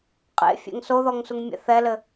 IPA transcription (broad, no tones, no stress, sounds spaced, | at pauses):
qʼ ḛ fʲ ɛ̰ ŋ s o ð ɔ ŋ s u ŋ mʲ ɛ̰ θ ɛ l ɘ